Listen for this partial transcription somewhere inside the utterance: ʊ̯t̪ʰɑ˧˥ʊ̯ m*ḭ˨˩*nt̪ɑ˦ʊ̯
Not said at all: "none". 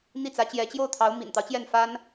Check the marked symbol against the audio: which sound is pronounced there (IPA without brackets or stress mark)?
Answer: ḭ˨˩